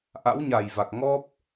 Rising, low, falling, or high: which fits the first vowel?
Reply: rising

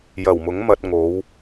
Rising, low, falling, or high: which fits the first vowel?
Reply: low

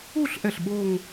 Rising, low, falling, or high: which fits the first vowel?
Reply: falling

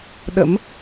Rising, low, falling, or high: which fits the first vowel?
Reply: rising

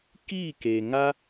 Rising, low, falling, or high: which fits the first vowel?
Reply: falling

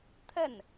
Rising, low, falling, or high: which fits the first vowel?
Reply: falling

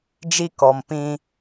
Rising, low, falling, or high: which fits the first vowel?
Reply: high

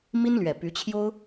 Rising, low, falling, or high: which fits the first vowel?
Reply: high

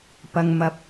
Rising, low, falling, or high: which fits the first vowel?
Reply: low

